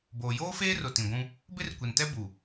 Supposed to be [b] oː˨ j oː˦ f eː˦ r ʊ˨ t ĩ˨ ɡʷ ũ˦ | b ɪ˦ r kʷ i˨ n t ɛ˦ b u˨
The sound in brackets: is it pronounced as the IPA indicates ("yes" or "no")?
yes